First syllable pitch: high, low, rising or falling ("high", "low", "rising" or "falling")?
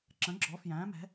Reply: rising